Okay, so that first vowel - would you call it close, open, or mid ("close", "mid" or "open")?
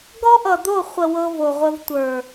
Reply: mid